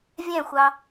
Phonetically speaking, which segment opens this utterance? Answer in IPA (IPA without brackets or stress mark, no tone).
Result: vʲ